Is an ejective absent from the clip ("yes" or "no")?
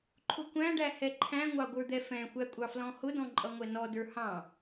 no